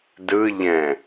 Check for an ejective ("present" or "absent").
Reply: absent